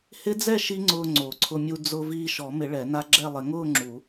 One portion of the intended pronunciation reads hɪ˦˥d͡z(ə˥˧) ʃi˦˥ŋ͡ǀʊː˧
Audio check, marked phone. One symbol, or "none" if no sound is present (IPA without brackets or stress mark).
ɛ˥˧